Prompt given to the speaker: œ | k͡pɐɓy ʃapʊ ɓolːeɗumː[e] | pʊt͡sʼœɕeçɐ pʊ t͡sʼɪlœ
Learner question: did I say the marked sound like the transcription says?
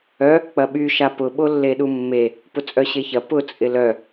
yes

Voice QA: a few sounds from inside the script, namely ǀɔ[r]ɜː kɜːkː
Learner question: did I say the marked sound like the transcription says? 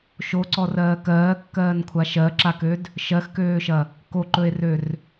yes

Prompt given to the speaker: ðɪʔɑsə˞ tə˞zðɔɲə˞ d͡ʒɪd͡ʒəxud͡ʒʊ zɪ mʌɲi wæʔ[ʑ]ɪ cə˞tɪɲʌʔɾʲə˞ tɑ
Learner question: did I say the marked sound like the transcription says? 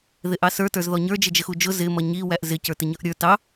no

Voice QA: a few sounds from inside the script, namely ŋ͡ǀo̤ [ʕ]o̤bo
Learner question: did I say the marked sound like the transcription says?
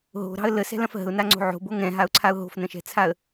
yes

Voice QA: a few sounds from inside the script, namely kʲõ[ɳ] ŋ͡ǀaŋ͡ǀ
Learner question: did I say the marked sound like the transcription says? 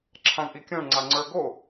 yes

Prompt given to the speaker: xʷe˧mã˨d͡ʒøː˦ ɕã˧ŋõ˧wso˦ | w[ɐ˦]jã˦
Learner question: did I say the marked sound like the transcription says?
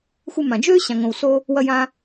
yes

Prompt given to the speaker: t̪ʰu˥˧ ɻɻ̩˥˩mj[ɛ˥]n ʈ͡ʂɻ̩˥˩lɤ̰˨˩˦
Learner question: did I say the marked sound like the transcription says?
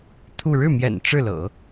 no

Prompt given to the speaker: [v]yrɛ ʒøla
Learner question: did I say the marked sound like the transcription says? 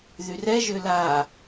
no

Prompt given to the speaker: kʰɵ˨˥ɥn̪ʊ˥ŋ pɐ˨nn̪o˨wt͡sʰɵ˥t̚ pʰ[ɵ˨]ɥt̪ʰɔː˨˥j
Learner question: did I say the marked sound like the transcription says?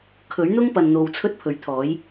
no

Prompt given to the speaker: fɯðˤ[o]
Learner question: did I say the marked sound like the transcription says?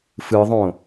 no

